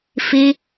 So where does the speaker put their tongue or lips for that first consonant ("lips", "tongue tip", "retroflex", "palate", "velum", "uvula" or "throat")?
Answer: lips